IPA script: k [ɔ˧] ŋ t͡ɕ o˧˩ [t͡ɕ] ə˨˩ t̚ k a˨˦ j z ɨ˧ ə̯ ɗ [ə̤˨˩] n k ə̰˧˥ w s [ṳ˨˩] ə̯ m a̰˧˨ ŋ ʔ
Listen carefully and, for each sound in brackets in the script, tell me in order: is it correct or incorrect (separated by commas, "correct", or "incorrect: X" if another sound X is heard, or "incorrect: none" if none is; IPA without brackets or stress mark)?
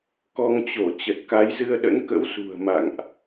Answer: correct, correct, incorrect: ə̰˧˥, correct